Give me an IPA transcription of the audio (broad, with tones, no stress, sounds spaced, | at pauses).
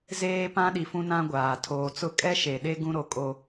z eː˦ p ã˦ ɗ i˨ f ũ˦ n ã˦ ɡʷ aː˨ tʰ oː˨ t͡s ʊ˦ kʼ ɛ˦ ʃ e˨ ɗ e˦ ɡ ũ˦ ɾ o˨ kʼ o˦